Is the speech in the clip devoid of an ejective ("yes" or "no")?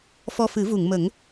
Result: yes